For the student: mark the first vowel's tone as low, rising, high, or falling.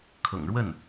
low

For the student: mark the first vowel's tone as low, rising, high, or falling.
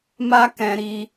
high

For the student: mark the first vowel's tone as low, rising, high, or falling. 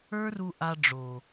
high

